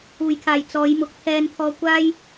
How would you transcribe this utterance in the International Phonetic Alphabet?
uː˨˩ j kʰ aː˨˩ j t͡s ɔː˨˧ j m ʊ˨˥ k̚ t̪ʰ ɛː˧ n t̪ʰ ɔː˧ kʷ aː˥ j

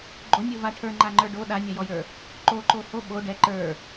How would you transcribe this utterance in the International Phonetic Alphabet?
ɡ͡ǃ o nʲ o v a ʈʰ ə˞ ŋ͡ǃ a ŋ͡ǃ ə˞ ɖ o ɗ a nʲ a j ɔ j ə˞ | ǃ o ǃ o h o ɓ o ɖ ɛ ǃ ə˞

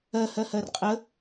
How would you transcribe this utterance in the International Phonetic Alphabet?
ɜ h ɜ h ɜ r qʼ ə

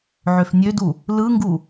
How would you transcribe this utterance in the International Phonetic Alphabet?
ʕ ø f nʲ ø d u | l ɯ ŋ ɡ u

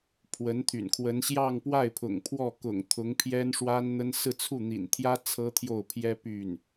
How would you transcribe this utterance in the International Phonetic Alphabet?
pʰ w ə˧˥ n t̪ʰ y̰˨˩ n kʰ w ə˧˥ n ɕ j ɑ˥˧ ŋ p w a˥˩ ɪ̯ pʰ ʊ̰˨˩ ŋ pʰ w ɔ˥˩ k ʊ̰˨˩ ŋ t̪ʰ ʊ˧˥ ŋ pʰ j ɛ˥ n ʂ w a˥ n n̪ ə˥ n s ɹ̩˥˧ t͡sʰ u˥˩ n̪ ḭ˨˩ n t̪ʰ j ä˥ t͡sʰ ɤ˥ t̪ʰ j o˥˩ ʊ̯ pʰ j ɛ˥ p y˥˩ n

